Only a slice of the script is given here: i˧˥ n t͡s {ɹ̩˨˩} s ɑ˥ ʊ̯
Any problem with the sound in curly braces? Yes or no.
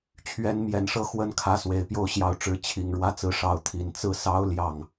yes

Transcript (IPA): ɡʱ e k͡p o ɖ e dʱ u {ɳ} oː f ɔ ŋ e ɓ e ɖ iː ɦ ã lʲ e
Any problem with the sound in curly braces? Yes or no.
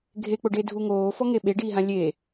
yes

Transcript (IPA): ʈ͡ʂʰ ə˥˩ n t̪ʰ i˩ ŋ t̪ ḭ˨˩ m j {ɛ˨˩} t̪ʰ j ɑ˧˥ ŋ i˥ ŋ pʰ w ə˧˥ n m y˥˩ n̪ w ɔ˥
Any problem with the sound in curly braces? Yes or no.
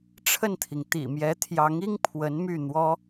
yes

